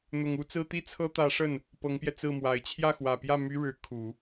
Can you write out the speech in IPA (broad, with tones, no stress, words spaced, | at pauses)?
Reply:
n̪ʊ˨˩ŋ u˧˥t͡sɹ̩˥t̪i˥ t͡sʰɤ˥t̪ä˧˥ʂə˥˩n | pɤ˧˥ŋpjɛ˧t͡sɹ̩˥˩mwa˨˩ɪ̯ t͡ɕʰjä˥˩xwä˨˩pjä˥˩ my˥ɻɻ̩˧˥ kʰu˨˩˦